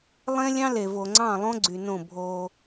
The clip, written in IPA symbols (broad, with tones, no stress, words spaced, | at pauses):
lˠẽ˦lʲɑ̃˦ le˨vo˨ŋ͡ǀɑ̃˦˨ lˠõ˦ɡ͡ǀy˨nõ˦˨ bʱo˦